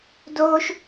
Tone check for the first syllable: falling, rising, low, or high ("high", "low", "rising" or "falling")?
high